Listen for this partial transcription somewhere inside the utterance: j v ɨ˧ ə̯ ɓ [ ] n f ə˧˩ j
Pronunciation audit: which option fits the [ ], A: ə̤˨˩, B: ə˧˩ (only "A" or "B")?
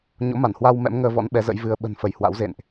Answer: A